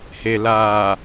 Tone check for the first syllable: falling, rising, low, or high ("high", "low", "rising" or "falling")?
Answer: low